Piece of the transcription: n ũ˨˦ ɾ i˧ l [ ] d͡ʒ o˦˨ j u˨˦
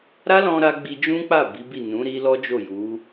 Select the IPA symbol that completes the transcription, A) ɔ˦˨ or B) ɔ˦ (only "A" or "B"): B